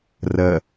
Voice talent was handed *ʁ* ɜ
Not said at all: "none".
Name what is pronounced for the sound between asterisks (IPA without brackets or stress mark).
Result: r